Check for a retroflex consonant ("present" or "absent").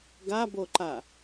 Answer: absent